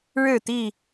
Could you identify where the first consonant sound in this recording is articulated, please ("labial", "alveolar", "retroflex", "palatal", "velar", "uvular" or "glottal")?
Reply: retroflex